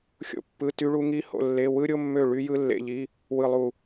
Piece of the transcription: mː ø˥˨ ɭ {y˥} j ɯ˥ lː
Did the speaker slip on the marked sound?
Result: no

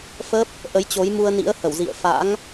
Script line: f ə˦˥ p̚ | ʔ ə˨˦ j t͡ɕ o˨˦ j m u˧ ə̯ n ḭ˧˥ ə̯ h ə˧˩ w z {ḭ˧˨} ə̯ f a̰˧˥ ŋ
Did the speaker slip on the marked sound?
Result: no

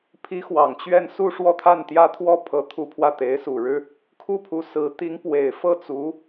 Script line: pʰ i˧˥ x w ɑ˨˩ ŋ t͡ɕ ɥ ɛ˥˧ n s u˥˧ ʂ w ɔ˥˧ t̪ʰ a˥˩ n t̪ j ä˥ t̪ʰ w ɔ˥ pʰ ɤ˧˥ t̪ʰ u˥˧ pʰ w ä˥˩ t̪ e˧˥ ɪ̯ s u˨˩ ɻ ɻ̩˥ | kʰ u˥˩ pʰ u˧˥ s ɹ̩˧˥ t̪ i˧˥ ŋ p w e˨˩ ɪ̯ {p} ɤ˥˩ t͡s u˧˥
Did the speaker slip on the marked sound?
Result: yes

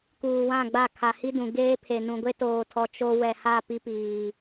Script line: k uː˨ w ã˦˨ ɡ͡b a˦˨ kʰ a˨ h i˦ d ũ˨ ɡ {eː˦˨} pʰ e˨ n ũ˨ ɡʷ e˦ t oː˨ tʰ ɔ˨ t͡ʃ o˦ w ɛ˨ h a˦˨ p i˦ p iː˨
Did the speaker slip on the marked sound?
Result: yes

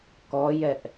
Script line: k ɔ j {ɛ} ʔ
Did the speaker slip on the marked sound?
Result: no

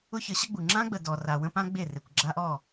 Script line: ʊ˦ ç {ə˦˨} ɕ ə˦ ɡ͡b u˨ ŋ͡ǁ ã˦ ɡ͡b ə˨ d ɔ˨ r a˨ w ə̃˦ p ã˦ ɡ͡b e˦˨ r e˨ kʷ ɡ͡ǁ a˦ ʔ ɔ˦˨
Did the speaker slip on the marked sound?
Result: yes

